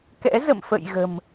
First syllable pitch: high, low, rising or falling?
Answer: rising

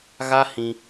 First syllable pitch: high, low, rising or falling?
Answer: high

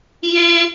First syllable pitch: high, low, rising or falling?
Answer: high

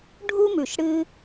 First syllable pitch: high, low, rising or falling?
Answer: high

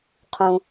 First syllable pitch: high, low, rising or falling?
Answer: low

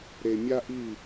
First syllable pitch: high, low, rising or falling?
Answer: low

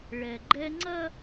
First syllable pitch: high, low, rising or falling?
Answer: low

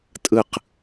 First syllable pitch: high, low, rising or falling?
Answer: falling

